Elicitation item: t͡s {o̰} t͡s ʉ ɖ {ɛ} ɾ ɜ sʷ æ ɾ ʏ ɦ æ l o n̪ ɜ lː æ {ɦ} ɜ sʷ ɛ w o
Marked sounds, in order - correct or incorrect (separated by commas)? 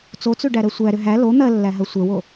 incorrect, incorrect, correct